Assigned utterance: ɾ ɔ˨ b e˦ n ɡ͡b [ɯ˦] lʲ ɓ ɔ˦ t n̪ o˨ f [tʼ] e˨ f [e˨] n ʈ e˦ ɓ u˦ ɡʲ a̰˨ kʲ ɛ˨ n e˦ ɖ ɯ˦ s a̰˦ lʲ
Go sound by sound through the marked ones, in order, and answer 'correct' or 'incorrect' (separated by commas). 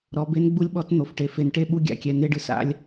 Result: incorrect, incorrect, correct